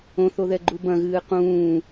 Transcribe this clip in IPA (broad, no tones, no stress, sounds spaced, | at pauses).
õ θ o ð ɛ ɡ͡ǃ u b ɐ̃ ɣ ɨː q ũː